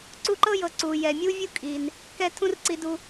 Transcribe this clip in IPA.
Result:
ǀ u˦ ǃ ɤ˥ j ɤ˨ ǀ u˩ j ɛ˩ mʲ u˥ vʲ u˥ kʼ i˩ n | k ɛ˦ tʰ ũ˦ r ǀ i˨ d u˨

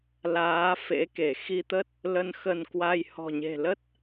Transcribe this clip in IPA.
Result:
l aː˨˦ f ḛ˧˥ k e˧˩ x i˧ t̪ ə˦˥ t̚ | l ə˧ n x ə˧ n k w a˧ j h ɔ̤˨˩ ɲ e̤˨˩ l ə˦˥ t̚

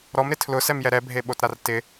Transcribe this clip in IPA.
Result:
ɾ ɔ m ɾ ɪ tʰ l ʊ s ɛ m j ɛ ɾ ɛ bʱ e ɓ o t ɾ a r t ɪ

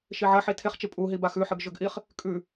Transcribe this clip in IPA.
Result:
ʃ i ʕ ɐ ħ i tʰ e χ t͡ʃ i pʼ u ɦ i b a x ʉ ħ ɨ ɡ ʒ ɵ ɡ ʔ i χ | kʼ ʉ

